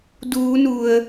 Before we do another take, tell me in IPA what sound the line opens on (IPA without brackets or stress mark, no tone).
d